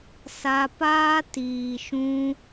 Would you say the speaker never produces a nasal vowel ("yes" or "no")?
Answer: no